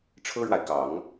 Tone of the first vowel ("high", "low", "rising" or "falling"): high